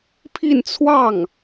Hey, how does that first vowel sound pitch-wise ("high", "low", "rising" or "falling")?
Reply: falling